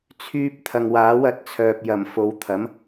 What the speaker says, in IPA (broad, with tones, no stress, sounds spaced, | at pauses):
t͡sʰ yː˥ p̚ t̪ʰ ɐ˨ ŋ w aː˨˥ w ɐ˨˥ t̚ t͡sʰ œː˨ p̚ j ɐ˨˩ m f o˨˧ w t̪ʰ ɐ˨˥ m